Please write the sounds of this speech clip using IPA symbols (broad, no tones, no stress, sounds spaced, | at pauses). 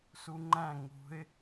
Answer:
s u ŋ͡ǃ æ̃ ŋ ṳ ɪ̯